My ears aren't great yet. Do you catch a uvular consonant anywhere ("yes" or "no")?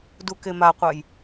yes